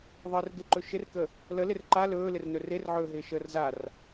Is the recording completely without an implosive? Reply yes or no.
yes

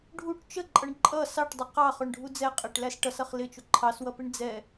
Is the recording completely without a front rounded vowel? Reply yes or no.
yes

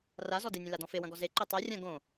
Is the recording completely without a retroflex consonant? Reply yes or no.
yes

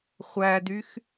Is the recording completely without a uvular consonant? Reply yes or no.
no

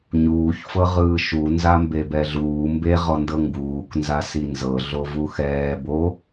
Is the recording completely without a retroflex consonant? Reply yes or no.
yes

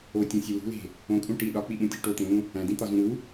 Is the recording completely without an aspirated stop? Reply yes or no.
yes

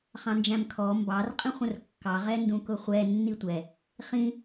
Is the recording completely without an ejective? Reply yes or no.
no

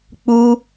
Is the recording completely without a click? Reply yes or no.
yes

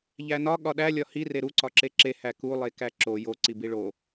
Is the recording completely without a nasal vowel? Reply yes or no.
yes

